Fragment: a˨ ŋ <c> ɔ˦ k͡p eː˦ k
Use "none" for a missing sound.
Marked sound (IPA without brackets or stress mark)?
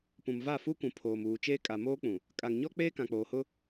ɲ